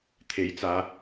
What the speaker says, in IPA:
t̪ʰ e˨˥ j t͡s aː˨˧

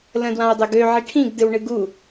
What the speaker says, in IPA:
l ə̃ d w ã u̯ dˤ ɵ ɡ ø ʕ i ʈʰ ĩ ɡ d ɨ w ɳ ɨ ɡ u

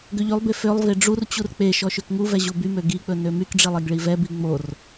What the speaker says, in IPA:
ɡ ø ʎ y lˠ b e f ø lˠ v e ɖ͡ʐ u r t͡ɕ u r k͡p e ʃ ɔ ʃ ø k ŋ u v ɛ ʑ u b y m ø ɡ i k͡p ɵ n ø m y k ɖ͡ʐ i lˠ e ɡ ɭ i v ɛ b i ŋ͡m o r

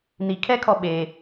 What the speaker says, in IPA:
n i kʰ ɛ kʰ ɔ ɓ e

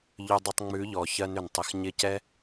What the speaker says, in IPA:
ʎ ʏ˧ dˤ ɪ˧ tˤ ŋ͡m ʉ˨˦ ʎ ɔ˨ ç ɜ˧ n ʏ˨ n tˤ ɪ˨ x ɲ ɪ˧ c ɛ˦

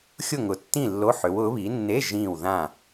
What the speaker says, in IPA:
xʲ ʊ˥˨ ŋ ʊ˨˦ tː ĩ˥˨ lː o˧˥˧ ħ ʏ˨˦ w ʊ˨˦ β i˨˦ nː e˧˥˧ ʒ ĩː˥˨ w ð ã˥˨

